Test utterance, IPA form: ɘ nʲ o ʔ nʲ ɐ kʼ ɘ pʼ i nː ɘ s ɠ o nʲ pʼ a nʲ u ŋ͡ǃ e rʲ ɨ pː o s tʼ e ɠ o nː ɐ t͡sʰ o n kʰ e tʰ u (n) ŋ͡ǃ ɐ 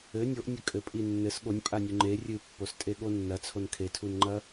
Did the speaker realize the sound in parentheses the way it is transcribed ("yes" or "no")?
yes